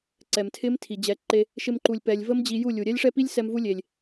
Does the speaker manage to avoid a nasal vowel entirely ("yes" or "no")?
yes